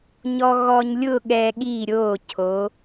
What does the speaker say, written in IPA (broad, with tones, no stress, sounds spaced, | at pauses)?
ɲ ɔ˧ ɣ ɔ˧ ɲ lʲ ʊ˥˧ ɠ ɛ˧ ɠ i˧˩ ɾʲ o˧˩ cʰ o˩˧